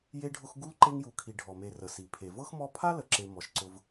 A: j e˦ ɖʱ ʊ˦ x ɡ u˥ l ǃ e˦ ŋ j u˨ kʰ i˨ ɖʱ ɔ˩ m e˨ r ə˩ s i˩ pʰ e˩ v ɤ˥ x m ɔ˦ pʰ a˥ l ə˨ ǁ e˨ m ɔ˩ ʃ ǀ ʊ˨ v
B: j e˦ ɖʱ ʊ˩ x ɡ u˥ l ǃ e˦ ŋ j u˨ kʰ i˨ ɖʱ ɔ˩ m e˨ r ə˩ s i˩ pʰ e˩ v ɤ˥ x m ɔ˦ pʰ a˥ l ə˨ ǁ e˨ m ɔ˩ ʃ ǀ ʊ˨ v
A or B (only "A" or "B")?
A